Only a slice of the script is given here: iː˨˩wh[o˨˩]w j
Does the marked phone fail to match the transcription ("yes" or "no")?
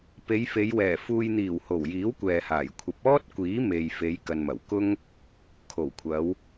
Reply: no